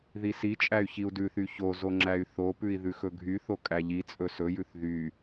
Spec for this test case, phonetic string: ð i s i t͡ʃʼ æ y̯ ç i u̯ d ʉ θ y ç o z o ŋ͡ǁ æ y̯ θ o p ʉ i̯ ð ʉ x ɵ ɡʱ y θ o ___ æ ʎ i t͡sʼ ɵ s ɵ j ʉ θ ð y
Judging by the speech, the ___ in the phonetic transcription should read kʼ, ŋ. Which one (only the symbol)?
kʼ